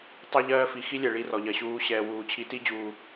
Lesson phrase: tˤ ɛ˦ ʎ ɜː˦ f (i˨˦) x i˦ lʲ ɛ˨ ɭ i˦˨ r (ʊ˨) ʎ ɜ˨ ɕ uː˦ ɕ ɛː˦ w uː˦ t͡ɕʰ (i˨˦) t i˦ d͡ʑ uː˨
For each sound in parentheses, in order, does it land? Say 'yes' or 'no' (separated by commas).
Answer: no, no, yes